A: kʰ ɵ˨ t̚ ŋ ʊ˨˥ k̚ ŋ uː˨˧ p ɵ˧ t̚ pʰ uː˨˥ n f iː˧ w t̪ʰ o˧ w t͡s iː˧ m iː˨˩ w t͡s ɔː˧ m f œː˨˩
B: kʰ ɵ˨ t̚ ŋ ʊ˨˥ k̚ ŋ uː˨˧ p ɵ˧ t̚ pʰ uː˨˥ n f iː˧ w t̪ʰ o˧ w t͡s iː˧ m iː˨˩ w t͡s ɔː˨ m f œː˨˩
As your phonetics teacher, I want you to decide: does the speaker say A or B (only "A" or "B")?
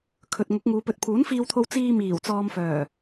B